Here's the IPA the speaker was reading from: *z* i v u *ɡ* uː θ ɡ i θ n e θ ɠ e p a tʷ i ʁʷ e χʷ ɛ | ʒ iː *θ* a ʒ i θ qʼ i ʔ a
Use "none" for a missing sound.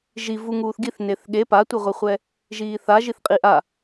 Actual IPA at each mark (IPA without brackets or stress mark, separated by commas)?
ʒ, ŋ, θ